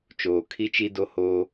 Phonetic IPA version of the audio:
t͡ʃ oː˨ kʰ i˦ t͡ʃ i˦ d o˦ h oː˦

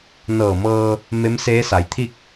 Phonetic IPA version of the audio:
n ɤː˧˩ m ɤː˧ | m e˧˥ m s eː˧˥ s a˩˧ j t̪ʰ i˥˨ k̚

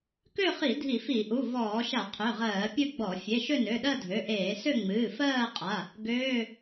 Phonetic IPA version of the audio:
k ø˥˧ χ i˧˩˧ dʱ i˧˩˧ f i˧˩˧ ʔ u˩˧˩ v ɔː˧˩˧ ʃ a˧˩˧ qʰ ø˩˧˩ ʁ ɜː˧˩˧ pʲ ɨ˥˧ ɡ͡b ɔ˧˩˧ fʲ e˩˧˩ ʃ ø˥˧ n ø˩˧˩ ɗ ɜ˥˧ dʱ ø˩˧˩ ʔ eː˧˩˧ s ø˥˧ ŋ͡m ɨː˩˧˩ f ɜː˥˧ qʼ a˩˧˩ | ɡ øː˩˧˩

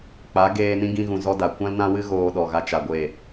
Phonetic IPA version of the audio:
k͡p a˨˦ ɡ eː˧ n ĩ˦ ɡ ĩ˧ ɣ ũ˨ z ɔ˦ d a˨ kʷ ã˦ l n ã˦ w ɨ˦ ɣ oː˧ ɗ ɔ˨ ɣ a˧ t͡ʃ a˨ ɡʷ e˦˨

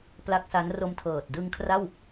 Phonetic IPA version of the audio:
p l a˦˥ k̚ s a˦˥ n r o˧ m tʰ ɤː˨˩ t̚ d ɯ˧ ŋ kʰ r a˥˩ w

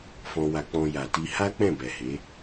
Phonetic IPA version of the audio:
f ɔ̃˧ w a˧ k͡p ɔ̃˧ j a˨ t i˧ h a˦ k͡p ɛ̃˦˨ b ɛ˨ h e˨˦

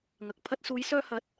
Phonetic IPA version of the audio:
ŋ ɐ˨ k̚ pʰ ɐ˧ t̚ s uː˨˧ j s œː˧ h ɐ˨˥ t̚

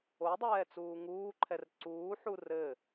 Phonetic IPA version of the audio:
o dˤ ɛː t͡s uː ŋ uː ǃʰ ɛ r ǀ uː ħ u r ɘ

